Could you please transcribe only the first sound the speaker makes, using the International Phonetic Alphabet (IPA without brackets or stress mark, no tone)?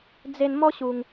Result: d͡z